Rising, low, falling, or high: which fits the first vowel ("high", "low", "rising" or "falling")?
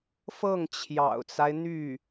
falling